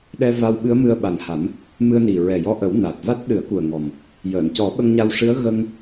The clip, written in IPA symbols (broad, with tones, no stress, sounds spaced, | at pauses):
ɗ ɛ˧ v a˧ w ɓ ɨ˧˥ ə̯ m ɨ˧ ə̯ ɓ a˨˩ n h a˨˩˦ m | m ɨ˧ ə̯ n i˨˩ ɹ ɛ˨˩ j ɔ˧ ʔ ə˨˩˦ w n a˨˩ t̚ v a˦˥ t̚ ɗ ɨ˨˩˦ ə̯ k u˨˩ ə̯ ŋ ɔ˨˩ m | j əː˨˩˨ n c ɔ˨˩˦ ɓ ə˧ ŋ ɲ a˧ w ʂ ɨ˧˥ ə̯ ɣ ə˧ ŋ